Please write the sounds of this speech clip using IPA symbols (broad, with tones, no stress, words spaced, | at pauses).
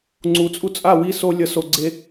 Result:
ŋ͡ǀu˨t͡sʼu˧t͡sʼa˦˨wi˧ so˧lʲʌ˨˦ so˧ɡ͡ǀe˦